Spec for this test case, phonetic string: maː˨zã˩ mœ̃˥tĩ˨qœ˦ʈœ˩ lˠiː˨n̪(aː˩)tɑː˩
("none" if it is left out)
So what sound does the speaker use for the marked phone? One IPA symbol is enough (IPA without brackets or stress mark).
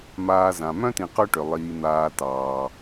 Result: aː˨